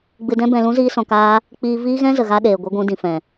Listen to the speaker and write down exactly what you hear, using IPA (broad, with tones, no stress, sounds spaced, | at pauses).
ɡ͡b ɨ˧ d ɛ̃˦ b ɛ̃˧ l ũ˦ z iː˦ s ɔ̃˧ k aː˦ | k͡p iː˧ v iː˦ ɣ ɛ̃˦ z ə˨ ɣ a˧ ɗ eː˨ ɡʷ ɨ˧ ɡʷ ũ˧ d ĩ˨ f ɛ̃˨